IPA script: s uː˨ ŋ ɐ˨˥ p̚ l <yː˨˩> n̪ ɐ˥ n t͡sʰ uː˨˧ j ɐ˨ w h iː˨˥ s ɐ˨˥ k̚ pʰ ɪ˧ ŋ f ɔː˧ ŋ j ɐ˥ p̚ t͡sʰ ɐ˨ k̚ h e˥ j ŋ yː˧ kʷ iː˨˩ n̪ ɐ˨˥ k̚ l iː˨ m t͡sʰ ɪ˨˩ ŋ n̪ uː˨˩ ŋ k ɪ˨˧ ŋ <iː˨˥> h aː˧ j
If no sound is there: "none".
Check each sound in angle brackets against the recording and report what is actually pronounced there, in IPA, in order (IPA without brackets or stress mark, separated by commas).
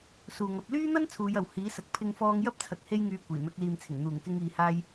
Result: yː˥, iː˨